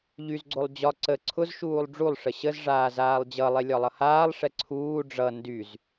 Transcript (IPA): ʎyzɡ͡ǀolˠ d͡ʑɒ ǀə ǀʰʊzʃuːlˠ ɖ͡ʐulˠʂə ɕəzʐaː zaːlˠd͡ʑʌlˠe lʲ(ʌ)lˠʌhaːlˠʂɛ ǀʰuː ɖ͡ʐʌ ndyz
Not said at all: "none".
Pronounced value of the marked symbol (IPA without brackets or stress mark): ɒ